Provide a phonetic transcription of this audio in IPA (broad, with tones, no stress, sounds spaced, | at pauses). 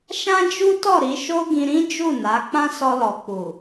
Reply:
ʃ ã˦ d͡ʒ u˦ t ɔ˦˨ ɾ i˨˦ ʃ o˦ ɡ ĩ˧ ɾ ĩ˦ d͡ʒ u˦˨ n a˨˦ k͡p ã˦ s ɔ˧ l ɔ˨ k͡p u˨